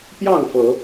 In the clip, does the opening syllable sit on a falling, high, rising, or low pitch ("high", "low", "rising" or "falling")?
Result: falling